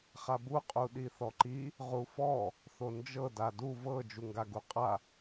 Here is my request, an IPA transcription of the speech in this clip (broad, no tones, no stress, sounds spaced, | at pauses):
χ a b u qʼ u ɗ i θ ɔ ǃ i | ʁ u f ɔ | θ o n d͡ʒ ɤ d a d u v ɤ d͡ʒ u ŋ ɡ a ɡ u qʼ a